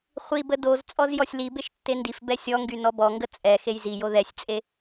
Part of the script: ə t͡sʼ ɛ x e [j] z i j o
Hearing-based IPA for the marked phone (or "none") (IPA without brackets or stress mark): j